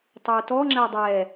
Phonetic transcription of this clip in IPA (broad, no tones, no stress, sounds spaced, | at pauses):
tˤ o u̯ t ɔ ŋ͡ǁ æ dˤ ɛ